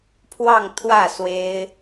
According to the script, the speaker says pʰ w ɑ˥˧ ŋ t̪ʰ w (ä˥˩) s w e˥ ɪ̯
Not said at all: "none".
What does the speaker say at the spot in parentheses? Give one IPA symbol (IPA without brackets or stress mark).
ä˥˩